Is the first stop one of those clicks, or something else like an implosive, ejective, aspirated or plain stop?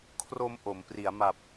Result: aspirated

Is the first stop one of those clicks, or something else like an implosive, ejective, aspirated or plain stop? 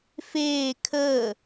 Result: aspirated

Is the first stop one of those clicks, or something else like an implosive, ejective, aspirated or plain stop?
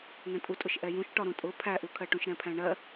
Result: ejective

